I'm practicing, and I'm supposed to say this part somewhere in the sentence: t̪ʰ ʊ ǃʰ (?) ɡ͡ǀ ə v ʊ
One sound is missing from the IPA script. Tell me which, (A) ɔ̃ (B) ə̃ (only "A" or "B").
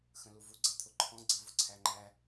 A